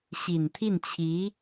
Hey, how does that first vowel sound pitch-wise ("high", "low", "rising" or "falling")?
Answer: low